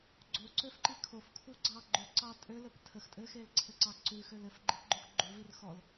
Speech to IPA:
ɡ͡ǀoǀøfǃi kʰofkʰuɡ͡ǀɑ ɡ͡ǃʉǀɑ tʼølɘp tʰəx tʼɘxelǀʰɘǀɑ ǀʉxøl ɘfɡ͡ǃipɡ͡ǃux ɡ͡ǃuvir xɔl

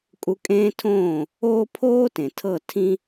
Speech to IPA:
kʼu˧ kʼẽː˦tʰõː˦˨ | oː˦ pʰoː˦tẽ˨ tʰɤ˦˨tʰĩ˦

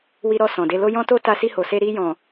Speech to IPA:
wi˧ɾɔ˧ sɔ̃˨de˧lo˦ jɔ̃˦to˦ ta˧si˧ho˨se˧ ɾi˧jɔ̃˨

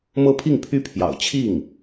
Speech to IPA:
mɤ˥pʰi˥˩ŋpʰy˥pʰjɑ̰˨˩ʊ̯ t͡ɕʰi˥˩ŋ

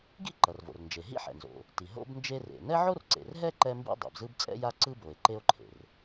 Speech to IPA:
ɡḭ˥ǃʌ˩rvo̰˩r nd͡ʒe˩ɦḭ˥ħɛ̰˩nzo̰˩ | ti˩ɦo̰˥bnd͡ʒe˥ rḛ˩ nɛ˥ʕo˥rǀḛ˩rɦɛ˥ ǃɛ˥mbḭ˥ dˤḛ˩bzɯ˥b t͡sʼɛ̰˥ja˥ ǀɯ˥bo˩e̯ ǃe˥o̯ǃʰḛ˩r

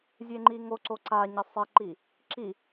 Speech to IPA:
zʲeŋ͡ǃiŋoǀo ǀaɲɘ sˤɘǃi | ǁi

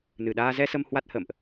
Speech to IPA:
nɨ˨˩ɗaː˧ zɛ˧sə˧m hwa˦˥t̚hə̰ː˧˨mʔ

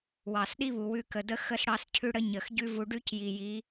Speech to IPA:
wɑ˨sɗi˦βu˨ wʉ˧kə˨də˦ xə˦sɽɑ˦scʰʉ˦ɽə˦ ɲə˨x ɟʉ˦vu˧ ɖʉ˦cji˨ji˨˦

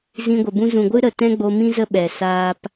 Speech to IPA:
zĩ˧ɡʷə˨ bũ˧zũ˨ɡʷɨ˦ɾə˨ tɛ̃˦ɡ͡bo˧ mĩ˦zə˦ɓɛ˨ saː˦p

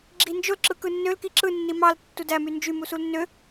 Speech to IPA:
ɡ͡ǁind͡ʒol ǁɯkɯnːøl kiǁɯ nːimɑl tːudæ mynd͡ʒy musulnːø

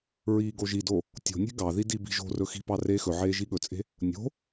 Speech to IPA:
ɹiːɡoʒido | tʲo̤nʲe̤ ɡɑði dibi̤ʒo̤rɵ xi̤pɑ reːxɵʕeː ʒiɠɵt͡sʼe̤ | nʲo̤

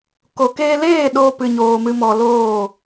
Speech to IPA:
ko˨keː˧leː˦˨ ɗo˧pɨ˨ɲoː˨mɨ˨ mɔ˨loː˦˨

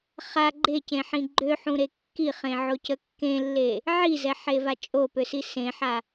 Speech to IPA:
χa ɡ͡ǃecẽħĩ ɡ͡ǃøħũɾe kːiχẽʕocə kːẽlːe | ʕizɛħeva t͡ʃʼopøsi sẽħa

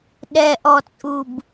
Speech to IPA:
ɗɛʔɔt͡sʼub

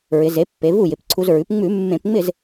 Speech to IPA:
ɹɪ˩˧ze˩˥pːe˩˧ vu˥˩jɪ˩˧pǀʰu˧zɹʉ˩˥p ŋ͡mʉ˧˩˧ mːẽ˧˩˧pŋ͡mɪ˥˩z

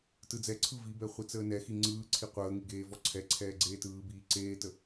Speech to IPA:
tɯd͡zɛǀʰɯ vibɛ χʷit͡səːnɛxi ŋ͡ǀɯːǀʰi qʷəːŋi ɡeːvɔǀʰɛǀʰɛː ɡ͡ǀeːtɯːbiː ǀeːtə

